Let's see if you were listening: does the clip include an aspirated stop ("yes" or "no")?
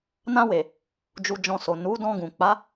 no